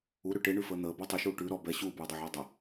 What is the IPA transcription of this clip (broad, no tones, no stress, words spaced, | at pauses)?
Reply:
uɾʉ ʈeɳʉfəː n̪əːbəː tˤʉʃuː ʈʉ ɾɔ bɛ ɕuːbuːdˤɛʕəː dˤə